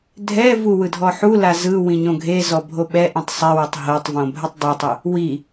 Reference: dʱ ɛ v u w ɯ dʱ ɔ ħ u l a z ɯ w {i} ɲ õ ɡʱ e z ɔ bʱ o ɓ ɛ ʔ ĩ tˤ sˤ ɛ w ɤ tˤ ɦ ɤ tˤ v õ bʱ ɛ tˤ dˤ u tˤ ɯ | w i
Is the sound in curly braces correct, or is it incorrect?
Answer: incorrect